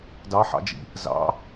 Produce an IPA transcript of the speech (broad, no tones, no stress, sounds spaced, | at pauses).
d ɑ ħ ɑ̰ d͡ʒ ḭ | z ɑ̰